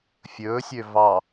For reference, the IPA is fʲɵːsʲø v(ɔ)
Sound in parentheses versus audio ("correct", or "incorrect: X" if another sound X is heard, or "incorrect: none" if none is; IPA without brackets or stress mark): incorrect: ɑ